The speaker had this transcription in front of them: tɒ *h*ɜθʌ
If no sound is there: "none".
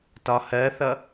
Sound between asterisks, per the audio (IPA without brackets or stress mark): h